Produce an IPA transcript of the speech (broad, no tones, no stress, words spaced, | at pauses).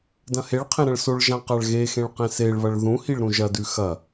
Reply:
dɐ̃heɭqʰẽ ɾɐ̃ɭsoɭʒã qaɭɣexẽɭ qẽseɭβɐɭ ðũhiɭ ɾũʒɐdʉ xɐ